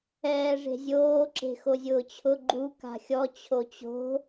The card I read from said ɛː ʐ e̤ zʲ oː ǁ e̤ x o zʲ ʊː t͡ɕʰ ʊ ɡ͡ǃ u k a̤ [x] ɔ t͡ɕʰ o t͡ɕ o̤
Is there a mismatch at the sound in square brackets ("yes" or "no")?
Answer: yes